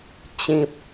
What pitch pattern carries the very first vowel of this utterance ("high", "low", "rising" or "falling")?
high